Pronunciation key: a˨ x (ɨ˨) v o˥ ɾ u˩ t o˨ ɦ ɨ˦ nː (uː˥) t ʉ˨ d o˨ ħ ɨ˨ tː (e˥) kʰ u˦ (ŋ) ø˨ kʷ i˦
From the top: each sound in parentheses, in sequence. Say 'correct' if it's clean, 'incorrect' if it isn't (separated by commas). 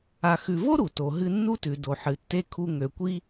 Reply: incorrect, incorrect, correct, correct